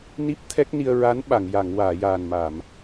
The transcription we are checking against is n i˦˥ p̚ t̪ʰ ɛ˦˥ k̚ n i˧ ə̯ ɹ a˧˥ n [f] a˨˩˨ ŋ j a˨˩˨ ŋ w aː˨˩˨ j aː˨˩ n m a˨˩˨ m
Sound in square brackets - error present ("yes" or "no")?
yes